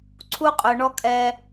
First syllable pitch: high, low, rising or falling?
high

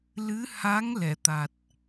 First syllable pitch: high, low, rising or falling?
rising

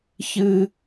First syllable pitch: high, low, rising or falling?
high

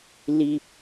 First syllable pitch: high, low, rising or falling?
low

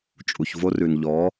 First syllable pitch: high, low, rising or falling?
low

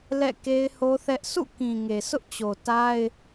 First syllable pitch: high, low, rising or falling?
falling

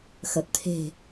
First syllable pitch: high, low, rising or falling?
low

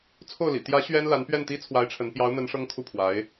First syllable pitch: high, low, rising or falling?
falling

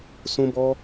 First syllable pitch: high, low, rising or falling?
high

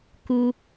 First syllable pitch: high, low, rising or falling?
high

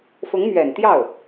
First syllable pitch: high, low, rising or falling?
rising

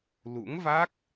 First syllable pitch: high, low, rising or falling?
rising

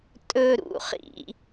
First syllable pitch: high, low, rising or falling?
high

